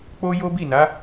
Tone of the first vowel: high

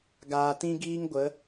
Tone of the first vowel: low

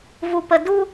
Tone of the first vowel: low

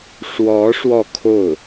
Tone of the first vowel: rising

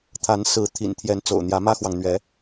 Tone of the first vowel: rising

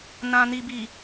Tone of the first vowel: low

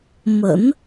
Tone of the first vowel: low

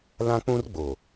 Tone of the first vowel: high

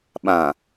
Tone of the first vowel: low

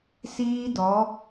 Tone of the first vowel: high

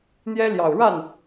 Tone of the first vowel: high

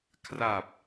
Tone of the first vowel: low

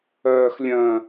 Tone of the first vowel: high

